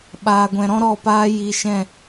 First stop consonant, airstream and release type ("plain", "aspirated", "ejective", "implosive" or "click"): implosive